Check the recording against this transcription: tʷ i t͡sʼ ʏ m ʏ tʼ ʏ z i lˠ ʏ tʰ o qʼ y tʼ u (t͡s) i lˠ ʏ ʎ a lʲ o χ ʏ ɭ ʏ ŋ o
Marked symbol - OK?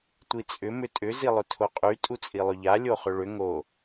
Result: no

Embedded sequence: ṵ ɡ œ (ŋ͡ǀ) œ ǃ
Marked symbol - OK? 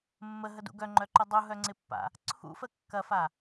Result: no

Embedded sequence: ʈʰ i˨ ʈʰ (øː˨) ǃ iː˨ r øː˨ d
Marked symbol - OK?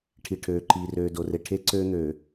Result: yes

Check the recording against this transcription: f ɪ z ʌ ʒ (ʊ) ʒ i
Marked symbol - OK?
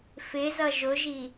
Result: yes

